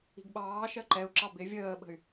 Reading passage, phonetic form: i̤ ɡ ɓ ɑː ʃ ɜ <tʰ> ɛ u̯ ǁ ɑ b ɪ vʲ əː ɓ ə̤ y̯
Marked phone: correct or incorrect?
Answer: incorrect